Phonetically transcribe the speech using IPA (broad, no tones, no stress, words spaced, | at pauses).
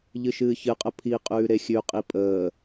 ʎɨʃɨːçɨqʼə pʰiqʼʉː ɾexʲʉqʼi pʼəː